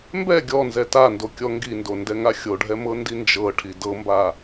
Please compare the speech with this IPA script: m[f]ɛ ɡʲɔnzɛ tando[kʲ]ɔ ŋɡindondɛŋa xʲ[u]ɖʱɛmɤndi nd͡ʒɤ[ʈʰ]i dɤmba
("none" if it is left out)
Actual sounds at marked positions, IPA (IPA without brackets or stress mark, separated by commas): b, kʲ, o, ʈʰ